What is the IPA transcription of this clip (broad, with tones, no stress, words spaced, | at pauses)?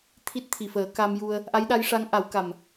t̪ʰi˦˥t̚t̪ʰi˨˩fəː˨˩˦ ka˧mju˧ə̯ | ʔa˧˥jɗa˧˥jʂa˧˥ŋ ʔa˨˩˦wka˨˩m